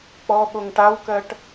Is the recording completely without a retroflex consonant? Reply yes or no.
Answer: no